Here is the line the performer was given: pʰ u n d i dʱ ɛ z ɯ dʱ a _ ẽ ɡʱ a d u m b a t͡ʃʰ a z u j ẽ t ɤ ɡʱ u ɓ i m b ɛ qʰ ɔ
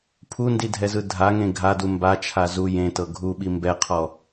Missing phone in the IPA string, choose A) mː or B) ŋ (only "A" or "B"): B